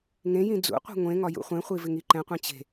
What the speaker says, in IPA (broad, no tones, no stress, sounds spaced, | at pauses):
ŋ ẽ j ĩ d͡z ṵ qʷ i̤ ŋʷ ẽ ŋ ɒ j ṵ χʷ ẽ χʷ i v ɪ ŋ i ǃ ɛ̃ qʷ ẽ t͡ɕ e̤